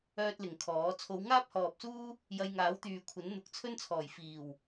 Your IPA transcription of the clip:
œː˥t̚lɪ˨ŋkʰɔː˨˥ t͡sʰo˨˧wŋaː˥p̚hɔː˨p̚suː˥ | jɐ˧jŋaː˨˥wt̪yː˨kʷʰɐ˨˥n n̪ʊ˨˥k̚t͡sʰɵ˥nt͡sʰɔː˨˩j fiː˨˩w

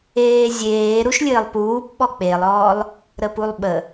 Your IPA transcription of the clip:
eːzʲeː ɾuʃlʲɘːlˠpuːp ɓɔk͡pelˠɔːlˠ | ɾəpulˠɓə

